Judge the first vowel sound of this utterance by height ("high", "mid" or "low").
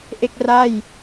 mid